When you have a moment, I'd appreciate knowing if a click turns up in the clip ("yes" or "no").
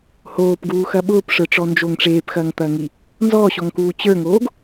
no